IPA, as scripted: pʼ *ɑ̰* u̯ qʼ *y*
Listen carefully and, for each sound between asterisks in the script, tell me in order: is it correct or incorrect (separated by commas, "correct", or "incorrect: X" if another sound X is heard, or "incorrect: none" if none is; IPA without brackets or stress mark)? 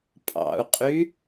correct, correct